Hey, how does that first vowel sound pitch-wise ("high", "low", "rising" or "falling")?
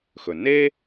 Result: low